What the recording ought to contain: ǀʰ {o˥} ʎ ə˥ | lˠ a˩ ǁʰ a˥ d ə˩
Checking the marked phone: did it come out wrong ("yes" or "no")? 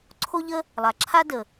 no